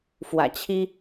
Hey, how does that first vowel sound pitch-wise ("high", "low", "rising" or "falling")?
low